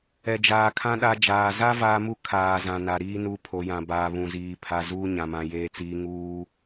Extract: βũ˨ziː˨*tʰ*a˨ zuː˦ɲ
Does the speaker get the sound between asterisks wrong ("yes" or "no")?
yes